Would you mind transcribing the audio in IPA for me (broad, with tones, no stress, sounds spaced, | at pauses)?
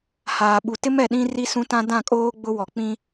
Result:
h aː˨ ɓ u˨ t ɪ˦ m ɛ˨ ɗ ĩ˦ r i˦ s ũ˦ t ã˦ d ã˦˨ kʼ oː˦ ɡ͡b ʊ˦ w ɔ˨ k͡p ĩ˦